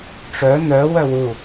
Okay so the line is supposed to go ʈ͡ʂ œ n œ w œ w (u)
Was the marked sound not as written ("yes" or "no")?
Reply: no